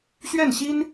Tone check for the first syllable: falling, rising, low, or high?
falling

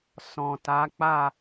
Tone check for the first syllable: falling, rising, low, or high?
low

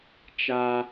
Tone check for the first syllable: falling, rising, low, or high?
high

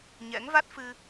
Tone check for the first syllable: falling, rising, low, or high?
rising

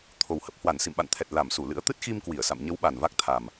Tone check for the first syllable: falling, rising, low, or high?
low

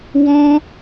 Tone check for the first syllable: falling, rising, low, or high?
high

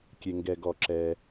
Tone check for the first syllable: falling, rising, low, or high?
low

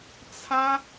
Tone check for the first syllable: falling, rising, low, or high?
high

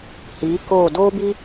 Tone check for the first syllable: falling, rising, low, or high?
rising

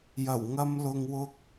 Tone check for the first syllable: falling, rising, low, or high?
low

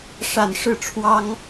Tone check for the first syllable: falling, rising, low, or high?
falling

